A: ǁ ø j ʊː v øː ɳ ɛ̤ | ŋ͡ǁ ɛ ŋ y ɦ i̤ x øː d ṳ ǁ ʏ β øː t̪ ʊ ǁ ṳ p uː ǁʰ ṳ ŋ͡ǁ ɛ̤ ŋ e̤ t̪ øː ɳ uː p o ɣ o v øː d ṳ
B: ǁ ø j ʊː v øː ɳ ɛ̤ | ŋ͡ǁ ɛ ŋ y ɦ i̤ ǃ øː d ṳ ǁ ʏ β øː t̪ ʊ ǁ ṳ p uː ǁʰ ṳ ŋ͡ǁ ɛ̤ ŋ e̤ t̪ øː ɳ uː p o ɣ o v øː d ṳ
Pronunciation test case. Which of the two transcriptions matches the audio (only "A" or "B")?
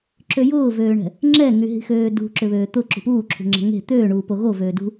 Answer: A